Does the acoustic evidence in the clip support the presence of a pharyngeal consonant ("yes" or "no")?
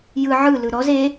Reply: yes